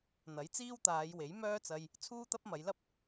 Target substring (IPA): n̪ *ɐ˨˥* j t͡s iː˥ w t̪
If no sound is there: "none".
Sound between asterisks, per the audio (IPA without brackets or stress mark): ɐ˨˥